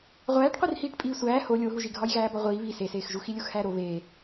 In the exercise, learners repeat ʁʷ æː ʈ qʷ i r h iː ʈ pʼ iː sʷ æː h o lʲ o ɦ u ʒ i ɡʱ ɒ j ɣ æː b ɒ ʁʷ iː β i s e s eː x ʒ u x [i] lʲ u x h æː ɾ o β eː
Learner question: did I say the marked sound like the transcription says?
yes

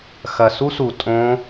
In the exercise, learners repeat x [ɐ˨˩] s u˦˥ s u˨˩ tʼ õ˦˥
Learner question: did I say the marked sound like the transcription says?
yes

